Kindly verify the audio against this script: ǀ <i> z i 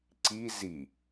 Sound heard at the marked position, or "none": i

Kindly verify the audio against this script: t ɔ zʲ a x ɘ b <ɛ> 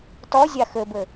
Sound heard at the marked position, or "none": ɘ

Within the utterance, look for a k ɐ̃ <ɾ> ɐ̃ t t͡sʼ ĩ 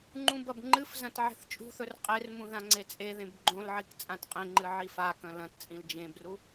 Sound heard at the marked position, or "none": l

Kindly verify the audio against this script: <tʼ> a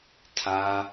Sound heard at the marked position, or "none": tʰ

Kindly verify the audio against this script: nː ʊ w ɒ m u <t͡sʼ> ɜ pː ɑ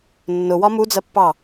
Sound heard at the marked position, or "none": d͡z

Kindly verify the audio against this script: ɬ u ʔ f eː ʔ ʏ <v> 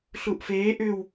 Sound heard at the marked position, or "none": w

